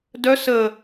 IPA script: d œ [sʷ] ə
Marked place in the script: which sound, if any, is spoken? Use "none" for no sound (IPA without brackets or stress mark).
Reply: s